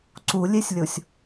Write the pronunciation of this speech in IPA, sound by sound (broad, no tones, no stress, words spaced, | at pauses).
ǀulʲesʲlʲosʲ